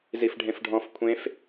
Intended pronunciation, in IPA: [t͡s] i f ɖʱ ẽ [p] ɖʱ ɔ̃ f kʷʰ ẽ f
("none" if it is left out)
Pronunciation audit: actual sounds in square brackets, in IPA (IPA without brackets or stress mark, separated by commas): z, f